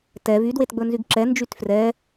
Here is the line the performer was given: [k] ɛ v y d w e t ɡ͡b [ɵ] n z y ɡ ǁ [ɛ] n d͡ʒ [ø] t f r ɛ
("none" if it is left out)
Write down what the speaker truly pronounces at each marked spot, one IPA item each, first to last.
t, ɵ, ɛ, y

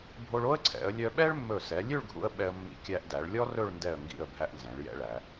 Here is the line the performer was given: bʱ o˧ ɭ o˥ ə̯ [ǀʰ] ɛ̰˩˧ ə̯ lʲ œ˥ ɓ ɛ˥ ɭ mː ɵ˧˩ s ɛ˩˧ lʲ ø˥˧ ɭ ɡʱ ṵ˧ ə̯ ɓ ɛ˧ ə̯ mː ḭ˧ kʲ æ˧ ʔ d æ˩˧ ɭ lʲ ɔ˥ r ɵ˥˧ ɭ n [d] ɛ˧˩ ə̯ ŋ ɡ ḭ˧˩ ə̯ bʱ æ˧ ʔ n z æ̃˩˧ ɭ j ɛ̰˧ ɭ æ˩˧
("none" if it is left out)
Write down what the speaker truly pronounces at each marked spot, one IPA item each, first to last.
ǀʰ, d

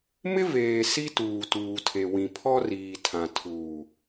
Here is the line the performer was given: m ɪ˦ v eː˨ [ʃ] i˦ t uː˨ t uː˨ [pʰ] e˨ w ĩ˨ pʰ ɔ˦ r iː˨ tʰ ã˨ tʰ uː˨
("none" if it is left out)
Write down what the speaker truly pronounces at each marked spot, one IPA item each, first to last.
s, tʰ

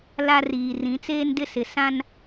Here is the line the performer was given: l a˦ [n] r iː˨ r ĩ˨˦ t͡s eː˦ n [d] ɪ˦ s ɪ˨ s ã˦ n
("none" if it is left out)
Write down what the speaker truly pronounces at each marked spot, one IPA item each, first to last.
none, d

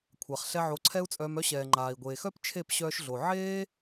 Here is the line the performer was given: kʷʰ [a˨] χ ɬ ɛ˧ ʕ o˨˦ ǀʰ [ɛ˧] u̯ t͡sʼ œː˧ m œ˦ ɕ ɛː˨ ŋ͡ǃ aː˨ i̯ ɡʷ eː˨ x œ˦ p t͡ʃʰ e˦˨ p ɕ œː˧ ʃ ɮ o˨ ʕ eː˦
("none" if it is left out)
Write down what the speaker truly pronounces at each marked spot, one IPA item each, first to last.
a˨, ɛ˦

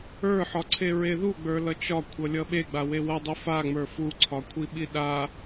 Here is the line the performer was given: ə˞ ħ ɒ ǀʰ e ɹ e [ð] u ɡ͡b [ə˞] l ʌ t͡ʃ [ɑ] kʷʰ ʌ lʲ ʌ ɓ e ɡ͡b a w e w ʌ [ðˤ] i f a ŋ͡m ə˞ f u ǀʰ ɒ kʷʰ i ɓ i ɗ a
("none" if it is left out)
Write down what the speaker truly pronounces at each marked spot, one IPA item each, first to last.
ð, ə˞, ɒ, dˤ

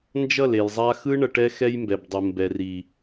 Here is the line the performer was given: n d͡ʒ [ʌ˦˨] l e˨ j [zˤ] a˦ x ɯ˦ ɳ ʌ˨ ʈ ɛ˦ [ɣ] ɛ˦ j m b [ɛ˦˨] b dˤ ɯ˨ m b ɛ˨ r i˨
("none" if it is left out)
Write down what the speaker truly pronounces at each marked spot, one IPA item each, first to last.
ʌ˦˨, zˤ, x, ɛ˨

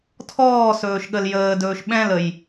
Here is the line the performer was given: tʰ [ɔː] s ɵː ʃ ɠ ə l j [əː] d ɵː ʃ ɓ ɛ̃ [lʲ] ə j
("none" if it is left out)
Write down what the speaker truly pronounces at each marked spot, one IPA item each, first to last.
ɔː, əː, l

